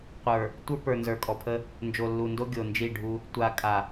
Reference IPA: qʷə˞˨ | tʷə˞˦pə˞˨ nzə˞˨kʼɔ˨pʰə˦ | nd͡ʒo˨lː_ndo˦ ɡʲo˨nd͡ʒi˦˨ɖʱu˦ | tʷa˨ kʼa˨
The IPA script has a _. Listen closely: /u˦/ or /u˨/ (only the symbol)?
u˨